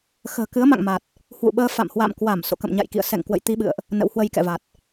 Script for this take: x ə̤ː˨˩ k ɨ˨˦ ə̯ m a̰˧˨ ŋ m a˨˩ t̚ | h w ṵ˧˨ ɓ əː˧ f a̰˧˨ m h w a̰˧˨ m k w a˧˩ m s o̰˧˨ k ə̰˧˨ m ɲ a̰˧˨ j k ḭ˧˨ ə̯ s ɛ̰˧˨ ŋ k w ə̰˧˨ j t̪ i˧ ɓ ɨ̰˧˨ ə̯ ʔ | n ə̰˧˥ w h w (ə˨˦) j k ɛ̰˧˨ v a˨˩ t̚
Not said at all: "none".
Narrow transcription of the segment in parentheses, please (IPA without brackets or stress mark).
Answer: ə˧